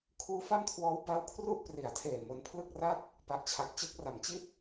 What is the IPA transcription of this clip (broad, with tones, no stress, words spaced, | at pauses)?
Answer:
kʰuː˦˥fa˥˩mkʰwɔː˦˥w ba˦˥wkʰru˥˩ʔpri˩˦a̯tʰeː˨˩ mo˦˥n pʰlɯ˥˩k̚ra˥˩t̚ | pa˨˩ʔt͡ɕʰa˨˩k̚t͡ɕɯ˥˩k̚ ra˩˦mt͡ɕi˥˩t̚